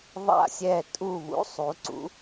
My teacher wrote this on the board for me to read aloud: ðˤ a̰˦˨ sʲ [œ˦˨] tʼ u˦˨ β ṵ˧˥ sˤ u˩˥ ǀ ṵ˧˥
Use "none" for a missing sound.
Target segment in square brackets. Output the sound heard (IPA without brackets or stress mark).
ɛ˦˨